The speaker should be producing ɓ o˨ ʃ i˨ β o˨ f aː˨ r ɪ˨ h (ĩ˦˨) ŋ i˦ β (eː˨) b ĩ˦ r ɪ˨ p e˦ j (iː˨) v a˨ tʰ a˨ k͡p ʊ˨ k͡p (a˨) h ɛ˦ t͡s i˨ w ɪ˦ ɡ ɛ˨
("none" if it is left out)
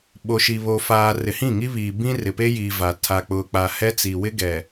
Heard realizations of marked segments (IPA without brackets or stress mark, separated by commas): ĩ˦˨, iː˨, iː˨, a˨